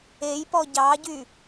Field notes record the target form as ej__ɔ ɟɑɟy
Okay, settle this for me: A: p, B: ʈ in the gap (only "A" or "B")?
A